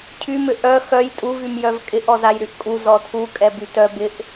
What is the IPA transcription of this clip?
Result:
cʰ y m ʏ ʔ œ x œ j tʼ u v y m j œ v kʼ ɪ ʔ ɔ z a j ɾ y ʔ kʼ u z ɔ tʰ u kʼ ɛ b y t œ b ɪ ʔ

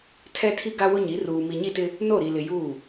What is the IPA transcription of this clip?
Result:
tʰ ɛ˦ tʰ i˦ ɡ a˦ w ʊ˦ ɲ i˨˦ r uː˨ m i˨ ɲ i˦˨ t ɪ˦ | n o˦˨ ɾ i˨ l ɪ˨ j uː˦˨

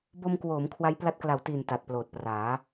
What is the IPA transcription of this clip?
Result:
b o˧ m k w oː˩˦ m kʰ w a˦˥ j p l a˦˥ t̚ k l a˨˩ w t iː˨˩ n t a˨˩ t̚ p l oː˨˩ t̚ p r aː˩˦

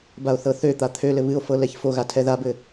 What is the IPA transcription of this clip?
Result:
b a o̯ θ ɤ θ ø t̪ a t̪ʰ ø l ɘ β ɨ o̯ f ɤ l ɛ ç f o ɣ a tʰ ɛ ð a b ɘ

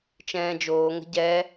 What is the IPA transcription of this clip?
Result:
t͡ʃ ɛ̃ː d͡ʒ oː ŋ ə̤ ɟ ɛ

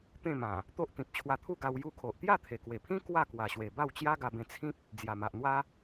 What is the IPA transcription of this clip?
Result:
t̪ ẽ˥˧ m ã˨˩ | t̪ o˦ ʔ t̪ ĩ˨ p̚ t͡ɕʰ w a˧ t̪ʰ u˥˧ ɡ a˧ w j u˧ kʰ o˨ ʔ t̪ j a˥˧ t̪ʰ e˨˩ k w e˨˩ pʰ ĩ˦ k w a˥˧ k w a˨˩ ɕ w e˨˩ b a˥˧ w t͡ɕ j a˦ ɡ a˧ b ẽ˧ t͡sʰ ĩ˦ p̚ | d͡z j a˨˩ m a˨ ʔ n̪ w a˦

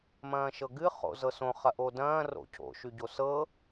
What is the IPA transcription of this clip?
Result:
m ɐ̃ː ʃ ɤ ɡ ɨ χ o̰ z ɤ s õ χ ɐ ʔ o d ɐ̃ː r o̰ cʰ o̰ ʃ y ɟ o s ɤ

